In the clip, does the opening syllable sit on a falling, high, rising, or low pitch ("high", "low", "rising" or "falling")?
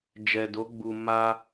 low